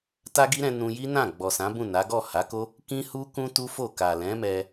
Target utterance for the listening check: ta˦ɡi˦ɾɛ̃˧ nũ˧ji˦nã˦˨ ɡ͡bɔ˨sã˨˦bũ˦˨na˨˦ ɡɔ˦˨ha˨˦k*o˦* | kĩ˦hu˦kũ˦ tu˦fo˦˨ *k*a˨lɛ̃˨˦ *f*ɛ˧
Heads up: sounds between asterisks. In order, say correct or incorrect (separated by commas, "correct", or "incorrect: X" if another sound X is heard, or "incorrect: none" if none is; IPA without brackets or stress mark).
correct, correct, incorrect: m